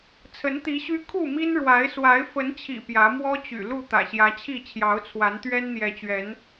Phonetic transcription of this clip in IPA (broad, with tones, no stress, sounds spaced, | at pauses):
t͡sʰ ə˨˦ n t̪ i˨˦ ɕ y˦ kʰ u˥˨ m i˦ n ɻ w a˨˦ ɪ̯ s w a˨˦ ɪ̯ f ə˨˦ n t͡ɕʰ ḭ˨˩ p j ä˨˦ m w ɔ˦ t͡ɕ y̰˨˩ l u˥˨ t̪ ä̰˨˩ ɕ j ä˨˦ t͡ɕʰ i˥˨ t͡ɕʰ j ɑ˨˦ ʊ̯ t͡sʰ w a˨˦ n t̪ ɥ ɛ˦ n n̪ j ɛ˨˦ t͡ɕ ɥ ɛ˨˦ n